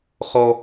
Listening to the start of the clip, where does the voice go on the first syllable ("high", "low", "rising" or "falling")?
high